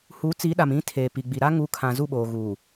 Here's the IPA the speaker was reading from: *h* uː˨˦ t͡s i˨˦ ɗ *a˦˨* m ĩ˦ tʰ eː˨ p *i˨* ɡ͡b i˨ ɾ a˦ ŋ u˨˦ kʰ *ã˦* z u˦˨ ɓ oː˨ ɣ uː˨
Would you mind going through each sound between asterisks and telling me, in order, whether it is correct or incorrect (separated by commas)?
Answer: correct, incorrect, correct, incorrect